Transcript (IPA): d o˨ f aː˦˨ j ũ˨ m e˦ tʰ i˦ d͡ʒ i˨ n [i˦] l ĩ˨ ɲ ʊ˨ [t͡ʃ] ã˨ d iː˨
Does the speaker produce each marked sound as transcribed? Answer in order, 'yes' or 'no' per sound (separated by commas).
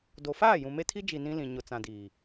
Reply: no, no